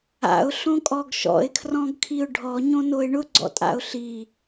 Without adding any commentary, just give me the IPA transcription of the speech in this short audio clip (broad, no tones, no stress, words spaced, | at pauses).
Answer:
a̰ʊ̯ɬõkʼɔɡ ʃɔ̰ɪ̯kʰrɔ̃ɡkʰiʊ̯ ɖʱɔɲõnoɪ̯ ɳʊɡ͡ǀɔ̰tʼa̰ʊ̯ ɬi